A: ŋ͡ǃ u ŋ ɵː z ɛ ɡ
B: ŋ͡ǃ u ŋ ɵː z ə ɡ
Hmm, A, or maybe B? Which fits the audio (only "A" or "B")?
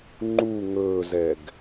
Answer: A